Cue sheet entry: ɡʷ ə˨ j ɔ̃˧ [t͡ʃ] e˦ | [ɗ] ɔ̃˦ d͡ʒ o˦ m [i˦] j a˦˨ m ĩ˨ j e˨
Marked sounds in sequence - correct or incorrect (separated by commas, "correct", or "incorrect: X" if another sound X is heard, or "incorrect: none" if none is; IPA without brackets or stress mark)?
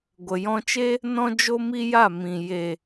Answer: correct, incorrect: n, correct